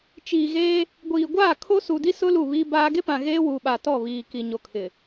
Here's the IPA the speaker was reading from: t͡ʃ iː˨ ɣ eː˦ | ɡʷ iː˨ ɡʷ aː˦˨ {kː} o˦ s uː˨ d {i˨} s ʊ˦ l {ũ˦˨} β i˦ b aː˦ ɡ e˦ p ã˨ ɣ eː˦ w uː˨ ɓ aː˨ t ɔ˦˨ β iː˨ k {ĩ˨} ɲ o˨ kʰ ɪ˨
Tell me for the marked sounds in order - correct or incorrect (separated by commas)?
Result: incorrect, incorrect, incorrect, incorrect